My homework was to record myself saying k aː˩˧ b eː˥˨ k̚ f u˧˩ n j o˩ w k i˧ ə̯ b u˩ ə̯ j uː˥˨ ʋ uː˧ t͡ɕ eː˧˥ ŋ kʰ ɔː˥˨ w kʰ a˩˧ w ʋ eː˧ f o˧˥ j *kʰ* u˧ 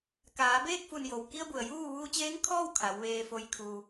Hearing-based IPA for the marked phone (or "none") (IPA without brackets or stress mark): kʰ